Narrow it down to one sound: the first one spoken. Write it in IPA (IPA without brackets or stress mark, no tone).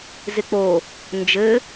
z